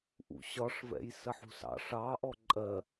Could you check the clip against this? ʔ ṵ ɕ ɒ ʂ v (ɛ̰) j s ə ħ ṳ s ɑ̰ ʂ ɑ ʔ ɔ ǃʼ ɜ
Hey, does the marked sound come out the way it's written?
yes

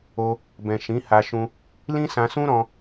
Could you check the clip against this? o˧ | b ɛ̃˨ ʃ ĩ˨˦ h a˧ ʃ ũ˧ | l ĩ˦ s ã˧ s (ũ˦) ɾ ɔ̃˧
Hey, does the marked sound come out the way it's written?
yes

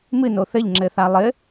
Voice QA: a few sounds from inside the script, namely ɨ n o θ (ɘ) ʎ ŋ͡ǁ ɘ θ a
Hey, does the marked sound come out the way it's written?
yes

